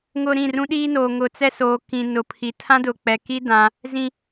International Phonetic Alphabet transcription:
ŋ ʊ˨ ɾ ĩ˦˨ r ũ˦ ɗ iː˦ n oː˨ ŋ ʊ˨ t͡s ɛ˦ s oː˨ k ĩ˨ n ʊ˨ pʰ i˨ tʰ ã˦ d ʊ˨ k͡p ɛ˨ k i˦ d ã˦ | z ĩ˨

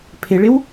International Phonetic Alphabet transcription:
pʰ ɪ ɭ ɪ w

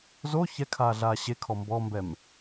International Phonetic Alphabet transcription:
z o ç ɛ kʰ aː ɮ aː ɕ e kʰ ɔ m b ɔ m b ɛ m

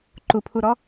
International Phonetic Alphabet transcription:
ǃ u pʰ u ɾ ɔ

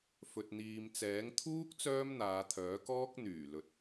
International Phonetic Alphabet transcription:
f ɵ˨ t̚ n̪ iː˨ m t͡s ɛː˨˥ ŋ t̪ʰ uː˥ k̚ t͡s œː˥ m n̪ aː˨˧ t̪ʰ œː˨˥ k ɔː˥ k̚ n̪ yː˨˩ l ɵ˨ t̚

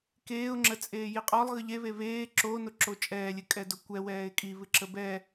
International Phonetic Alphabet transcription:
k eː ʊ̯ ŋ͡ǁ ə t͡sʼ eː j i qʼ ɔ lˠ ɣ ɨ ʎ e β e β eː ǁ o n o ǁ o t͡ʃʼ ɛː lʲ ɨ kʼ ɛ d o kʷ ɛ w ɛː ɪ̯ kʼ i β ɨ ǁ ə b ɛ

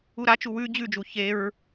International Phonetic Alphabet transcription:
u ɾ a t͡ʃ u w ʉ d͡ʑ ʉ d͡ʒ u ç e ɹ

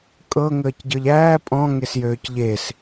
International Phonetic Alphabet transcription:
kʼ ɤ ŋ əː c ɟ ɤ ʎ æː pʼ ɔ̃ ŋ e s j øː c ʎ e s

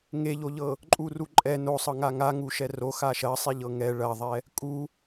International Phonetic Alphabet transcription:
ŋ e ʎ o ʎ ɤ | ǃʼ u r u ǃʼ ɛ n o sˤ ɤ ŋ a ŋ a ŋ u ʃ ɛ r o x a ʃ ɐ sˤ i ʎ ɤ ŋ ɛ ɭ ɐ ðˤ ɛ | kʼ u

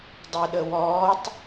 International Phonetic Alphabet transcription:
dˤ e ɗ ə w ɔː tˤ

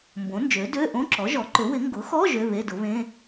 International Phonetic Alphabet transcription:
m b õ˩˥ n d͡ʒ ø˩˥ d ø˧˥˧ ʔ õ˧˥˧ ǁ ɔ˩˥ ʒ ɔ˩˥ ǃ ʏ˩˥ w ɪ˩˥ ŋ ɡ ʊ˩˥ x ɔ˧˥˧ ʒ ø˧˥˧ β e˧˥˧ d ʊ˩˥ β ẽ˧˥˧

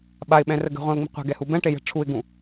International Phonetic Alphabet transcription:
ɓ a ɪ̯ ɓ ɛ̃ r ə ɡ ə̤ ʁʷ ɛ̃ ʊ̯ ŋ͡m i̤ qʷ ɛ̤ ɡ ɛ h u b ɛ̃ ʈ e j ɛ̤ ʈ͡ʂʰ u ɪ̯ ɡ ũ

